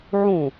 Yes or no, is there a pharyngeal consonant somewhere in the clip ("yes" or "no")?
yes